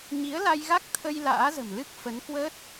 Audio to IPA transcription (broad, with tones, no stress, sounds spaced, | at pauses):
ɲ i˨˦ ə̯ l a˧ j ɣ a˦˥ k̚ t̪ʰ ə˧ j l a̰ː˧˥ z ə̤˨˩ m l ɨ˦˥ k̚ f ə˨˦ n k w əː˦˥ t̚